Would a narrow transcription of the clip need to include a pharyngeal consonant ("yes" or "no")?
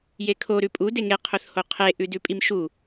no